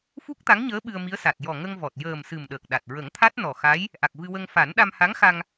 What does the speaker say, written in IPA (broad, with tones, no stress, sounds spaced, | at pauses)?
f u˦˥ k̚ t̪ a˧˥ ŋ ɲ əː˧˥ ɓ ɨ˧ ə̯ m i˧˥ ə̯ s a˨˩ t̚ j ɔ˨˩ ŋ ə˧ ŋ v ɔ˨˩ t̚ j əː˨˩ m s ɨ˨˩ m ɗ əː˨˩ k̚ ɗ a˨˩ t̚ ɹ ə˨˩˦ ŋ t̪ʰ a˦˥ t̚ n ɔ˨˩ x a˧˥ j | ʔ a˨˩ k̚ v ɨ˧ w ə˧ ŋ f a˨˩˦ n ɗ a˧ m h a˧˥ ŋ x a˧ ŋ